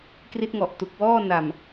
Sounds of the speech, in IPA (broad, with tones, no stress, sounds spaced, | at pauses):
k r i˦˥ t̚ ŋ ɔ˨˩ ʔ t u˨˩ k̚ w ɔː˥˩ n a˨˩ m